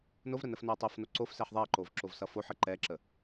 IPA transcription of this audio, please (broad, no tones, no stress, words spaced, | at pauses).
novɾə nəfnoɐ̯tˤofno ǀof sɛħðˤɛɐ̯ǃov ǁovsʌfoħə ǃɛǁə